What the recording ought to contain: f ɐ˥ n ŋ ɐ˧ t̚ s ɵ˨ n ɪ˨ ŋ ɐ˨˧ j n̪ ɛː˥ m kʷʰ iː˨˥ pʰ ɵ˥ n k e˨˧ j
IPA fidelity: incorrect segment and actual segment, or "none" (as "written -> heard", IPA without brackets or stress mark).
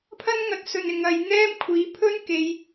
f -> pʰ